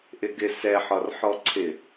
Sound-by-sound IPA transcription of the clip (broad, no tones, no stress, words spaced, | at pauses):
ʔɪɡɪ sɛħɒr ħɔǀʰɪ